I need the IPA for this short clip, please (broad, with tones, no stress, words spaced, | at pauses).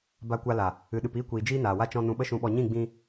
ba˧kʷa˧la˨ | ɨ˨ɗɨ˨p iː˧kʷiː˨ d͡ʒiː˦naː˨wa˦t͡ʃɔ̃˧ nũ˧ɓə˦ʃũ˧ɓɔ˧ ɲĩ˦˨ ɡ͡bĩ˧